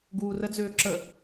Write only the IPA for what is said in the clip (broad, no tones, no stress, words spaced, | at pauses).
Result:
ɡuːrəd͡zøː ǁə